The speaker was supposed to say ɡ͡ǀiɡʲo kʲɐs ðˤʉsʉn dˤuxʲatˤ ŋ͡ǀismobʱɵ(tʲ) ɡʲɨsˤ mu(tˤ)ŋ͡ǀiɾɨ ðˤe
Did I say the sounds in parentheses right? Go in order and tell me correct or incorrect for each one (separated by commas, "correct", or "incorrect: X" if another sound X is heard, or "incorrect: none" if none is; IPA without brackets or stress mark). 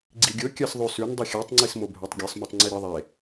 incorrect: tˤ, correct